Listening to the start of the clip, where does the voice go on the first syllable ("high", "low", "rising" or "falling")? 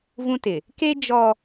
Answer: high